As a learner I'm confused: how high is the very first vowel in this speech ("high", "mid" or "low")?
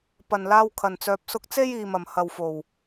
low